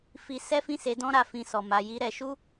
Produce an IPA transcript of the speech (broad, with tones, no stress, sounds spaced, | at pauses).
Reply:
f i˦ s ɛ˦ f ĩ˦˨ s e˨˦ d ɔ̃˦ ɾ a˧ f ĩ˧ s ɔ˨ m a˧ j i˦ ɾ ɛ˧ ʃ u˦